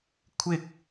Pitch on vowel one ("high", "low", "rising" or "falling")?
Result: low